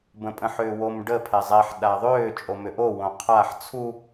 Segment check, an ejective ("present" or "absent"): present